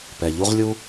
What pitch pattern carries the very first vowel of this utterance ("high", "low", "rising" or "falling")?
low